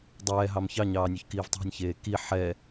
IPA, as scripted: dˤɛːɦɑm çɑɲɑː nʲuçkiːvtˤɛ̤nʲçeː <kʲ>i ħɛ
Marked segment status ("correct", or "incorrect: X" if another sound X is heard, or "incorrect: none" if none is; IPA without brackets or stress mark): incorrect: k